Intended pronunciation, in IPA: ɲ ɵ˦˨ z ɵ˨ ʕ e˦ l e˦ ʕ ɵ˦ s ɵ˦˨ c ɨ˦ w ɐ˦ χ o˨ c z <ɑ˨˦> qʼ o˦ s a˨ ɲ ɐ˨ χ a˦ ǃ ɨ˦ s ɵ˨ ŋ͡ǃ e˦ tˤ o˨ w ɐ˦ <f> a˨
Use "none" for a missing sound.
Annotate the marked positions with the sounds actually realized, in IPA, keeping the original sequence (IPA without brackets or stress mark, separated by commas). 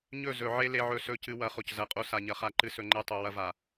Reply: ɐ˨˦, v